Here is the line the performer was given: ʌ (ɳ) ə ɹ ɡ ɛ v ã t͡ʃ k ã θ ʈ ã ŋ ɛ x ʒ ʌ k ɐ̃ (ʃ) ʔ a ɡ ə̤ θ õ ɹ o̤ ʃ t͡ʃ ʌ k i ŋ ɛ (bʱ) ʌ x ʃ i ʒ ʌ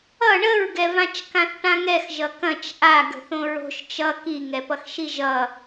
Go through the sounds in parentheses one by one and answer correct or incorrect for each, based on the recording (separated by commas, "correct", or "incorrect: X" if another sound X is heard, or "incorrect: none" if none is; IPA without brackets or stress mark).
correct, incorrect: t͡ʃ, incorrect: p